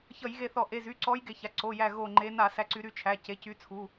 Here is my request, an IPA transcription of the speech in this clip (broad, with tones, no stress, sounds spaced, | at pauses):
ç ʌ˧˩˧ j ɣ e˧˩ θ ɔ˧˩˧ ʔ e˩˧˩ z y˩˧˩ ǀ ɔ˨˦ j ɡ e˧˩ ç a˩˧˩ ǀ o˩˧˩ j æ˧˩ ɣ o˧˩ ŋ͡ǃ e˨˦ n a˧˩˧ s æ˨˦ ǀ y˨˦ ɾ y˨˦ t͡ʃʰ æ˩˧˩ c e˩˧˩ c y˨˦ t͡sʰ u˩˧˩